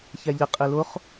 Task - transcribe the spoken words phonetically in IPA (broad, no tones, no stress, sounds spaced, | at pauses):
ç ɛ ʎ ɪ qʼ i l ʊ χ